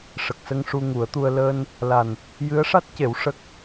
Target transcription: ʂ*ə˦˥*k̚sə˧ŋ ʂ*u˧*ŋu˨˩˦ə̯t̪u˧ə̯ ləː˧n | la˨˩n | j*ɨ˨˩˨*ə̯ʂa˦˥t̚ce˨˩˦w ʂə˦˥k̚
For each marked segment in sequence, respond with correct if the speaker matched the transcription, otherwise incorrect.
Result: incorrect, correct, incorrect

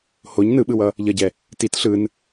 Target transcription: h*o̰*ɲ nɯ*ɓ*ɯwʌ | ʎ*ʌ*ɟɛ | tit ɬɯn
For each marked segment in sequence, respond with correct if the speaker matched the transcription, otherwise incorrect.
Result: incorrect, correct, correct

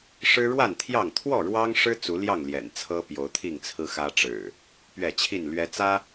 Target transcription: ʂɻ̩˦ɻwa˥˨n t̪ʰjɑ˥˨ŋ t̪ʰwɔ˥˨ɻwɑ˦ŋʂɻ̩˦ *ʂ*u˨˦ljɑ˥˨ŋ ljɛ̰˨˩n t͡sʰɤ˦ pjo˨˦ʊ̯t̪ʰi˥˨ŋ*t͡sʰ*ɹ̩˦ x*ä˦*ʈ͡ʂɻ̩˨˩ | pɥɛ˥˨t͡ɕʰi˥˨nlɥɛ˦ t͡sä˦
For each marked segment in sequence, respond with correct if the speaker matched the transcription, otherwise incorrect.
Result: incorrect, correct, correct

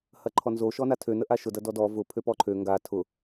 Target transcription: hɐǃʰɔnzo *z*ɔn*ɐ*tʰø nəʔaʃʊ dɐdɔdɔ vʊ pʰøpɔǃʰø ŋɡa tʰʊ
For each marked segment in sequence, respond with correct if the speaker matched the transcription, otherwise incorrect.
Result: incorrect, incorrect

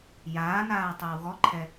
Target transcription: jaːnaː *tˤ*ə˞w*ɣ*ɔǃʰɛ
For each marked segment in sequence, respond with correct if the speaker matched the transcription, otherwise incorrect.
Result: correct, correct

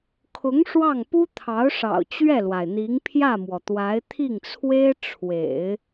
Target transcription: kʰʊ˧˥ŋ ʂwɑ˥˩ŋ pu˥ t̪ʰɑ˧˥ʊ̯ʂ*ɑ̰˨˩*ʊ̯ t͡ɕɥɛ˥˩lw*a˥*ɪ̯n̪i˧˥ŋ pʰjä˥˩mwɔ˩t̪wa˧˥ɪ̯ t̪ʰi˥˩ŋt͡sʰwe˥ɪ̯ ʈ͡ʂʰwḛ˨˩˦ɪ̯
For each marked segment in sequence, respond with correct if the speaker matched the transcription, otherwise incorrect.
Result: correct, incorrect

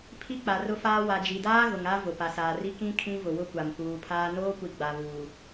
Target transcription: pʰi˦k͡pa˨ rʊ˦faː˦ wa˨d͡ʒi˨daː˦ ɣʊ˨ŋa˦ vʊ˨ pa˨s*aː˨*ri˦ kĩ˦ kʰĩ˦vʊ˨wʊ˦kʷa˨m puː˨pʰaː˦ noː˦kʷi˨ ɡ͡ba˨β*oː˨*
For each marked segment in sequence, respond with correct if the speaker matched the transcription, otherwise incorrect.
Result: correct, incorrect

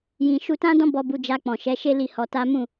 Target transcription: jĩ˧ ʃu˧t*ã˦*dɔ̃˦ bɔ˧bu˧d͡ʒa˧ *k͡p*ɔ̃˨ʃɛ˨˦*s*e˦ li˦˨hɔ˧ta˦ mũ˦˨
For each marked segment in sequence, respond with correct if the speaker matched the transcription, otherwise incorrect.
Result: correct, correct, incorrect

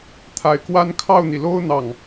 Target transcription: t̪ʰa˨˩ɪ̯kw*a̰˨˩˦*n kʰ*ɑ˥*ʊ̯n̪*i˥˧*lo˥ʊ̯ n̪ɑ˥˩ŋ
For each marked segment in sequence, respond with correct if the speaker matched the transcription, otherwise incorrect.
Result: incorrect, incorrect, incorrect

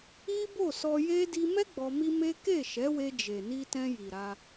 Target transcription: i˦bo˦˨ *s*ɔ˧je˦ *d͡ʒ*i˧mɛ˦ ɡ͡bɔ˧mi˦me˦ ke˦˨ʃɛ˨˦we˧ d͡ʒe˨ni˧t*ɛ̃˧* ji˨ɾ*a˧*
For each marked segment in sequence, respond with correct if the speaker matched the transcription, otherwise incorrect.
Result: correct, incorrect, correct, correct

